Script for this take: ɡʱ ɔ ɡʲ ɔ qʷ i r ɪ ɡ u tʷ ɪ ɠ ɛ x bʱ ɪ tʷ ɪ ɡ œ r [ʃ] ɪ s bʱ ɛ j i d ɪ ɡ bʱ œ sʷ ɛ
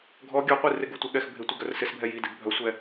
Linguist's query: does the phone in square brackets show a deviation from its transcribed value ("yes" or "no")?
yes